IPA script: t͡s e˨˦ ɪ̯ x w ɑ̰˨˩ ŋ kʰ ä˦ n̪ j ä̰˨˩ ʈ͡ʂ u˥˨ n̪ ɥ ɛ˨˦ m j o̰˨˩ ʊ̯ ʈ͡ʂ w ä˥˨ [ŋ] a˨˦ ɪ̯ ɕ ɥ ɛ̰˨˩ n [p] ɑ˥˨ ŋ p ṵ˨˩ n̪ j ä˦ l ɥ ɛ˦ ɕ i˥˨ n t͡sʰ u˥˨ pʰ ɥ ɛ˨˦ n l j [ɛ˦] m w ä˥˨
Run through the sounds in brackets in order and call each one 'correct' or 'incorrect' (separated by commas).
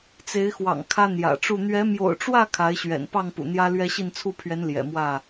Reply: incorrect, correct, incorrect